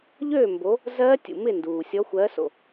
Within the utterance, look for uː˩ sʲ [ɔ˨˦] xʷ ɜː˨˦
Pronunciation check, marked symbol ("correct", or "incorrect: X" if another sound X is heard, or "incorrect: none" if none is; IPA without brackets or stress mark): correct